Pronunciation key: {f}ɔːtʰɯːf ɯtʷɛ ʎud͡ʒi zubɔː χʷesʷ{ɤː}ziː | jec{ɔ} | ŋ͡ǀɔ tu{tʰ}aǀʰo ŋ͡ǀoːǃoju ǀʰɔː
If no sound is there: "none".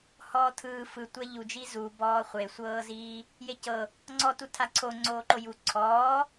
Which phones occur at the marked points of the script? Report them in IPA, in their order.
h, ɤː, ɤ, tʰ

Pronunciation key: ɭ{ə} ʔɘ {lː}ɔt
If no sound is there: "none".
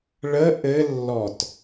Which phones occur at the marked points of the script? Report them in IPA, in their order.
ə, lː

